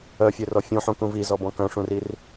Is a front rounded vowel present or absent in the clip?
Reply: present